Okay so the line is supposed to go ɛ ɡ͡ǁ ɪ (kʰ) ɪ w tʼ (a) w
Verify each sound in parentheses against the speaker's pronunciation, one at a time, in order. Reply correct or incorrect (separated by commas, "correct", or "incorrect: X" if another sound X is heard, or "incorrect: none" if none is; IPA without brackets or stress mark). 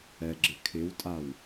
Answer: correct, correct